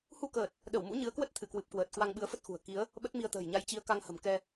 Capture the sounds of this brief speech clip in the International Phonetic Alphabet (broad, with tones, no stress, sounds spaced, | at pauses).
h u˧ k əː˨˩ t̚ | ɗ ə˧˩ w m ṵ˧˥ ɲ ɨ˨˦ ə̯ k w ə˦˥ t̚ t̪ʰ ɨ˧˩ k w ɨ˨˩ p̚ k w əː˨˩ t̚ k w a˧ ŋ ɓ ɨ˨˦ ə̯ f ə˦˥ t̚ x ṳ˨˩ ə̯ k i˨˦ ə̯ | ɓ ə˦˥ t̚ m i˧ ə̯ t̪ ə̤ː˨˩ j ɲ a˧ j t͡ɕ i˨˦ ə̯ k a˧ ŋ h ə̤˨˩ m k ɛ˧